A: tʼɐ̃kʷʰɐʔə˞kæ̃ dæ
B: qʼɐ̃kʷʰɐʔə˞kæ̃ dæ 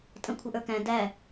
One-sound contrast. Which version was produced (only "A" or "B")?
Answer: A